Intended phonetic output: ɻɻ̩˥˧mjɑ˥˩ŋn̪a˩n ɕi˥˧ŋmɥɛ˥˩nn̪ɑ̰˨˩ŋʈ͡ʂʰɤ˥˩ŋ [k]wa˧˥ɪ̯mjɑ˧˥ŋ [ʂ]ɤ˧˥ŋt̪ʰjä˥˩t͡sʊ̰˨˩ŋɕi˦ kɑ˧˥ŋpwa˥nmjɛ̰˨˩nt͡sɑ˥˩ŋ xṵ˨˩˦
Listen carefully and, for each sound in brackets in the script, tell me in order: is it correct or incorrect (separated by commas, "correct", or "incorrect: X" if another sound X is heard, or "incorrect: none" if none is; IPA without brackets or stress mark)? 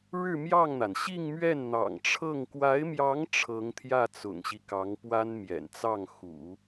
correct, incorrect: ʈ͡ʂʰ